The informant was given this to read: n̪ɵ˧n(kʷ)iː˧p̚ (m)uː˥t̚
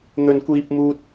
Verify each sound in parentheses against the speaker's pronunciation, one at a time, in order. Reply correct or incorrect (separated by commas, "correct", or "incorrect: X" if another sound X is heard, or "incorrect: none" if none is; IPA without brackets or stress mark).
correct, correct